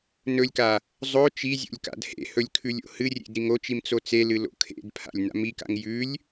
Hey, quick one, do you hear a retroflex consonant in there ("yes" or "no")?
no